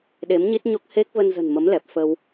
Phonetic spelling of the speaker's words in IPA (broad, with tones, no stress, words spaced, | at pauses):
ɗe˨˦mɲi˦˥t̚ɲo˦˥k̚ he˦˥k̚və˧nzə̤˨˩n mə˨˦mlɛ˨˩p̚ fə˧w